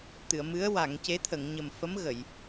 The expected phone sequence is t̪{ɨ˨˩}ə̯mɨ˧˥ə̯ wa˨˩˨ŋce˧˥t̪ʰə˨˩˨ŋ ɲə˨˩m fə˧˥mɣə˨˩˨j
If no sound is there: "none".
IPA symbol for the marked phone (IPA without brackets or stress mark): ɨ˨˩˨